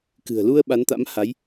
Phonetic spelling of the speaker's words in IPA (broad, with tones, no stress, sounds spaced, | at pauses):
k ɨ̤˨˩ ə̯ l u˧ ə̯ ɓ a˨˦ n t̪ a̰˧˥ m h a˨˦ j